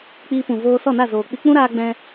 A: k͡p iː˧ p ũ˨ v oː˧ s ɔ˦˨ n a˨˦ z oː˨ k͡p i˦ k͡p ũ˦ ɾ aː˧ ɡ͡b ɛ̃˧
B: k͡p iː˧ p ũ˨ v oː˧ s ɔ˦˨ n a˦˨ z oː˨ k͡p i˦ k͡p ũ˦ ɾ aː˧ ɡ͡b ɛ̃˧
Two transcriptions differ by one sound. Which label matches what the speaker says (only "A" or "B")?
B